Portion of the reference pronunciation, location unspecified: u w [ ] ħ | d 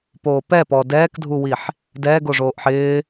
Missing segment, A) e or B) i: B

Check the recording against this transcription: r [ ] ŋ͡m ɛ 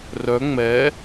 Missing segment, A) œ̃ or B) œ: B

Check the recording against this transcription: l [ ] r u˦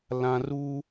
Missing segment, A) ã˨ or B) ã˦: A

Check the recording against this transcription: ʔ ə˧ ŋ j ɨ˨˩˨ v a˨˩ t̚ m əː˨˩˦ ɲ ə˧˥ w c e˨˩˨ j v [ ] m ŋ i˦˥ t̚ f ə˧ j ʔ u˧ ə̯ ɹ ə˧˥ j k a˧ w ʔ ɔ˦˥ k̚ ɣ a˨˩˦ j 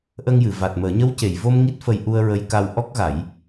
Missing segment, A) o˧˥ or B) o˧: B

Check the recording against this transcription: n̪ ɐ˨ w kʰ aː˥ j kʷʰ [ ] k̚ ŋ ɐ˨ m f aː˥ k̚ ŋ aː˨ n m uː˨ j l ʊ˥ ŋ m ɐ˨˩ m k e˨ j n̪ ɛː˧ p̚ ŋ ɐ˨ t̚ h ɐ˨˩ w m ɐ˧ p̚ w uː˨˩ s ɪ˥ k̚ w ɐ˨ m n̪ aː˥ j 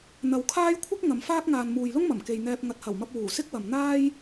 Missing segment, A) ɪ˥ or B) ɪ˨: A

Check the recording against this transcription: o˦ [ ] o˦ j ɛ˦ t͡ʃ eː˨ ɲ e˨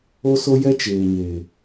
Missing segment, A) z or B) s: B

